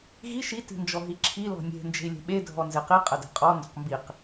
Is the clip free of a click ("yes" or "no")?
no